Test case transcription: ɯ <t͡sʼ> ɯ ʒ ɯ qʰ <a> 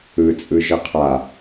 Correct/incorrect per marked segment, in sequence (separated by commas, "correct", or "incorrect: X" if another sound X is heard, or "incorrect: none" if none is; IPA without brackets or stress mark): correct, correct